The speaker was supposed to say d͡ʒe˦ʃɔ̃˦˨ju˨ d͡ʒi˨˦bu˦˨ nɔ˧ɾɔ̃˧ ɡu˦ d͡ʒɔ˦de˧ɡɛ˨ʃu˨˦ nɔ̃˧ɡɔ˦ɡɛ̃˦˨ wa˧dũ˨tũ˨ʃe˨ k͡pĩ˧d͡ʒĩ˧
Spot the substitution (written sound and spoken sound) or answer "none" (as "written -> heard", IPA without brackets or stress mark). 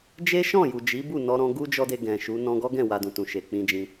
ɛ˨ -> ɛ̃˨